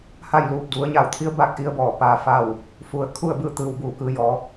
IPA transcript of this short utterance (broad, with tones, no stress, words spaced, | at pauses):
ha˥˨jluː˧˩p̚du˩˧ə̯ ɲa˧˩wt̪ʰi˧˥ə̯baː˧k̚ ʔi˧ə̯bɔː˧˩ paː˧faː˥˨w | fu˩ə̯ kʰu˥˨ə̯bɯː˥˨t̪ɯː˧˩w buː˧˩kɯː˩˧jɔː˩˧